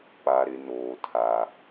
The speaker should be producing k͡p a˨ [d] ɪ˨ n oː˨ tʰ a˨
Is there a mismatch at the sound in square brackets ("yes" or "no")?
yes